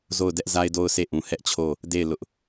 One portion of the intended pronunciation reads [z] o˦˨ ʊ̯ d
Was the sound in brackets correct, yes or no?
yes